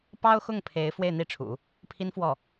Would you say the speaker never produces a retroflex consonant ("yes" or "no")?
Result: no